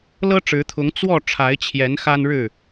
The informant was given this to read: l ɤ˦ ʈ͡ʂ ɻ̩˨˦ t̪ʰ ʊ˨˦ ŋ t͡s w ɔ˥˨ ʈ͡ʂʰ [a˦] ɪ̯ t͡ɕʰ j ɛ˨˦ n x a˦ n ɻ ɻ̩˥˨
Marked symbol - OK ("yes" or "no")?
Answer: no